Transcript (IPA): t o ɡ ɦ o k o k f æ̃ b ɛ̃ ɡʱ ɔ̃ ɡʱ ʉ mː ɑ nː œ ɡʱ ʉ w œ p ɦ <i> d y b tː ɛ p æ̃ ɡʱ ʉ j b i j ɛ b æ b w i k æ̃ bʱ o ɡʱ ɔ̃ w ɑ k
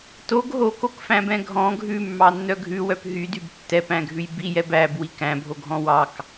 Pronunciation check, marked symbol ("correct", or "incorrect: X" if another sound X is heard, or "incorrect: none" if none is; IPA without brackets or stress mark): incorrect: y